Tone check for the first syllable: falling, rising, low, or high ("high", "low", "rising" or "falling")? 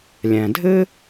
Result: low